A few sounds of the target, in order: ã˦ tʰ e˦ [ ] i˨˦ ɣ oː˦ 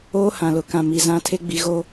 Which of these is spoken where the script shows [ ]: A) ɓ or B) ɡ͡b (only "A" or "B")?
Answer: B